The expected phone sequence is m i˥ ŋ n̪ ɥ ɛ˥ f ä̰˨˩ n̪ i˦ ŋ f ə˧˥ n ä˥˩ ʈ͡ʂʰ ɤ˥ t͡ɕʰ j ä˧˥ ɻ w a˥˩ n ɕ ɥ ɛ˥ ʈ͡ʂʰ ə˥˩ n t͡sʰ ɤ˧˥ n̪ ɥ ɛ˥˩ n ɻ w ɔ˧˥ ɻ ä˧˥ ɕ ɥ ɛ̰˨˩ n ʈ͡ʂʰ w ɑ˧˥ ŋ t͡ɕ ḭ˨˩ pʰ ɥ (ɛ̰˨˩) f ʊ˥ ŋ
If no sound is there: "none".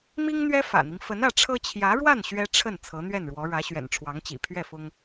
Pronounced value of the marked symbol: ɛ˥˩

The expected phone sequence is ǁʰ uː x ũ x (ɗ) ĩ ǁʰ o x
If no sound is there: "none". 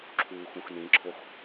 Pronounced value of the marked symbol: n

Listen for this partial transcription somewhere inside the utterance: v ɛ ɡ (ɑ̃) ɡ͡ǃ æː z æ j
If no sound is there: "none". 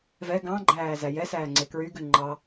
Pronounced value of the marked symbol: ɑ̃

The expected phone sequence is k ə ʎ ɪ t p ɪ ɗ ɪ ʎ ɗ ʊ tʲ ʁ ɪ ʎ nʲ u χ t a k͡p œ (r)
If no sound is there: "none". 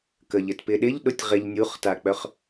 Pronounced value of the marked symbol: χ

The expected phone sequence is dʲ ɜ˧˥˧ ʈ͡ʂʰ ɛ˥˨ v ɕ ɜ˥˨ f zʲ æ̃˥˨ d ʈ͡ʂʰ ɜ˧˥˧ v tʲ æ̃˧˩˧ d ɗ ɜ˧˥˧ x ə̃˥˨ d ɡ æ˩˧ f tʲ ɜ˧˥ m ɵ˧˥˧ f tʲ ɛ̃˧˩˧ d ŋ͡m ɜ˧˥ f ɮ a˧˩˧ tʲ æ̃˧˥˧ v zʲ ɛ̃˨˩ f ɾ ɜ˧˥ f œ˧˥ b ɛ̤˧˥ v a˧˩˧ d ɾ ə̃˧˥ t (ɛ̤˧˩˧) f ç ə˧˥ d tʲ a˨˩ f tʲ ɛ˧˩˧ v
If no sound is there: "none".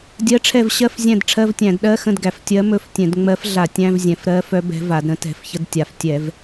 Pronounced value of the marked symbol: ɛ̤˧˩˧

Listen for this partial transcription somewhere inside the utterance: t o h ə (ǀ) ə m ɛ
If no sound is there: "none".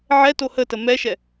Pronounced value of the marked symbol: t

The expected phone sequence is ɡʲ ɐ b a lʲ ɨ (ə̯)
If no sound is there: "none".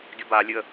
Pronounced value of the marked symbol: ə̯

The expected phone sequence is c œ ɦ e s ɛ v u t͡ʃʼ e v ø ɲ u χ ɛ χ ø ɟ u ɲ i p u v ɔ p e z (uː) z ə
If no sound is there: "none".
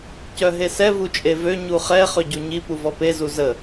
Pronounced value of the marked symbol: u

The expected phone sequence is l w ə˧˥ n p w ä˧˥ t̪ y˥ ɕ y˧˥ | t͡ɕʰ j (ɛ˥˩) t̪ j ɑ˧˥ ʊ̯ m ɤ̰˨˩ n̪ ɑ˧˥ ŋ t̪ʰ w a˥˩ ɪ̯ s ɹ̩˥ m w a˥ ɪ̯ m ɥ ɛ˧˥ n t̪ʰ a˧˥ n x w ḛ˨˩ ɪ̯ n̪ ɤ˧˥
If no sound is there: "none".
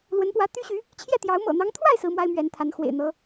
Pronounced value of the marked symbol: ɛ˥˩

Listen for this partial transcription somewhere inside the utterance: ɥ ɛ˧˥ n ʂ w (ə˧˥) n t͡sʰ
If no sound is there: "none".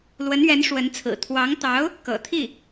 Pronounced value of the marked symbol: ə˧˥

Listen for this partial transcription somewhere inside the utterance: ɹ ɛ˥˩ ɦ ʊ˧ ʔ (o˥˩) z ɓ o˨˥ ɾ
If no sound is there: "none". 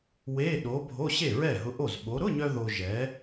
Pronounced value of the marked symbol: o˥˩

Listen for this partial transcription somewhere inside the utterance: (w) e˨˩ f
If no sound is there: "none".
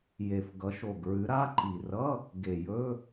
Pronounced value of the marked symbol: j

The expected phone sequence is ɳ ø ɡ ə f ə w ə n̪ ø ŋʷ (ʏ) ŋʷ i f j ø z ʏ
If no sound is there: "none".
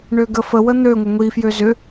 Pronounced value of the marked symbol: ə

